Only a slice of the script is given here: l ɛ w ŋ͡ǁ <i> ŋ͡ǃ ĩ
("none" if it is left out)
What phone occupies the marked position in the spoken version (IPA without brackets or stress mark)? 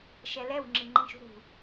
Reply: i